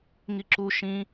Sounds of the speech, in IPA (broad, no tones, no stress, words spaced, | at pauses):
ŋiǁu ʃĩ